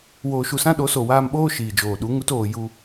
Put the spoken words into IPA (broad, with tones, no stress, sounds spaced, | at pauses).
w oː˧ ʃ u˧ s ã˦ ɗ o˨˦ s o˨ w aː˧ m ɓ oː˦ ʃ iː˨ d͡ʒ oː˨ ɗ u˨˦ ŋ u˧ t oː˨ j u˧